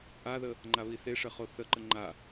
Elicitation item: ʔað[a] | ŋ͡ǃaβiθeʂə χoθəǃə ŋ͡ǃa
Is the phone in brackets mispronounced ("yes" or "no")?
yes